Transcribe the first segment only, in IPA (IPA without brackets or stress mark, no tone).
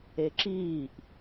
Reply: e